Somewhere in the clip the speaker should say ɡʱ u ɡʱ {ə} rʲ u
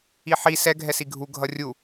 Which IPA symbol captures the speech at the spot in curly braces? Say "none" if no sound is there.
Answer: ʌ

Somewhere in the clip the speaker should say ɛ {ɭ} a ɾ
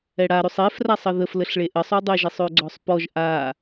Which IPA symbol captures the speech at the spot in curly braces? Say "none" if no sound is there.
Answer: ɽ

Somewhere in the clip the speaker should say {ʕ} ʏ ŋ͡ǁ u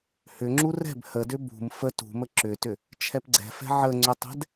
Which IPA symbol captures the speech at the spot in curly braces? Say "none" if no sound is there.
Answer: h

